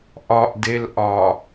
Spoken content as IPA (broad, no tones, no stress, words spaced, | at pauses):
ʔɒʔdel ʔɒ